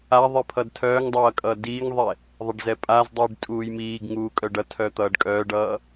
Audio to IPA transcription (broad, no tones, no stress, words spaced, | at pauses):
a ðˤipʰʌdtʰœːŋdˤʌː kʼʌːdiːŋðˤɛ | ðˤɛɖzɛpʼazdˤiːɖ tʼuːjmiːɡŋuː kʼœɖʌtʰœ t̪ʌːɖkʼœːɖʌː